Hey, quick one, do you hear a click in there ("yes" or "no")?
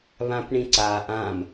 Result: yes